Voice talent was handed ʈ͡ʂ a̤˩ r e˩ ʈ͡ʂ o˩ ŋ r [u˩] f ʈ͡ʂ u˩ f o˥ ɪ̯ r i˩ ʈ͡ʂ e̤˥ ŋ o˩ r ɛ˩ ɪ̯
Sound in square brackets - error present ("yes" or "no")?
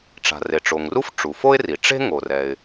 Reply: yes